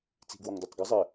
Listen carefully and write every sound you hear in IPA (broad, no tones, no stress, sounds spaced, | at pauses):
t͡s i̤ ɡ w ɒ ŋ d ɒ tˤ ɡ ɘ zˤ ɘ